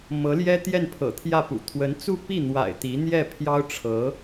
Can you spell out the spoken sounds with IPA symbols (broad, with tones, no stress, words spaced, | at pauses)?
mɤ˧˥ljɛ˥t̪jɛ˥˩npʰɤ̰˨˩ t̪ʰjä˥˩pṵ˨˩ t̪ʰwə˧˥nt͡su˥˧pi˥˩n̪wa̰˨˩ɪ̯ t̪i˧˥ n̪jɛ˥˩pʰjɑ˥ʊ̯ʈ͡ʂʰɤ˧˥